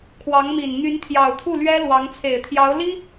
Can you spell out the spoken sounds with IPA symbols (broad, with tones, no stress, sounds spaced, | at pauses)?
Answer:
kʰ w ɑ˧˥ ŋ m i˨˩ n n̪ y˧˥ n t̪ʰ j ɑ˨˩ ʊ̯ t̪ʰ u˥˩ l ɥ ɛ˥ l w ɑ˧˥ ŋ t͡sʰ e˨˩ ɪ̯ t̪ʰ j ɑ˧˥ ʊ̯ l i˥